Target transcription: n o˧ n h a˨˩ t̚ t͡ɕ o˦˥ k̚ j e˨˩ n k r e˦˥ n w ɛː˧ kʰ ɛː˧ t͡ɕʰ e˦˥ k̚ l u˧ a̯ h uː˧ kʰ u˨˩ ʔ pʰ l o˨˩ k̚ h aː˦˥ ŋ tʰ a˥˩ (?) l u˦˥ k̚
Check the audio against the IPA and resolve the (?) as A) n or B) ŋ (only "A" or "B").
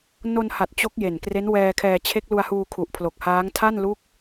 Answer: A